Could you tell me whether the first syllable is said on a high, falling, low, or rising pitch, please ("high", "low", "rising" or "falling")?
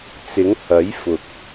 rising